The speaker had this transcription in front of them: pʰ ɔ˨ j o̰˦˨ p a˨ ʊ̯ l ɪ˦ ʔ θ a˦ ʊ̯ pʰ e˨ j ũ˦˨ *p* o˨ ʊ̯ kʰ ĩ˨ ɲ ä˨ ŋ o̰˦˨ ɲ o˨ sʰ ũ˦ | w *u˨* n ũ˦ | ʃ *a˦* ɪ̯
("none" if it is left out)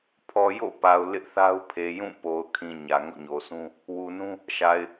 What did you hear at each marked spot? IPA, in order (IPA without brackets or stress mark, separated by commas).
p, u˨, a˨